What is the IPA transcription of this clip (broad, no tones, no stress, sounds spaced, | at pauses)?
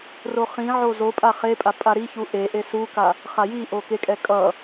r o χ ĩ ʕ o z o pʼ a χ e pʼ a pʼ a ɾ i ç u ʔ e ʔ e s u k a | χ a j i ʔ o k e kʼ ɛ kʼ ʌ